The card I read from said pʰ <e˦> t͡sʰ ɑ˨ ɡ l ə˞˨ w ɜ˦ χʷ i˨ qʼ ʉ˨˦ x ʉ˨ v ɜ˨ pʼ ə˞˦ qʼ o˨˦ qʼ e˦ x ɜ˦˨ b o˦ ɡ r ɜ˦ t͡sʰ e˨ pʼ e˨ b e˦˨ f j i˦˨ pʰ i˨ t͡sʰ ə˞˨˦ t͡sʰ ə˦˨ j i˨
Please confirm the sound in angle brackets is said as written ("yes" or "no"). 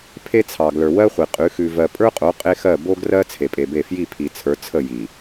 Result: yes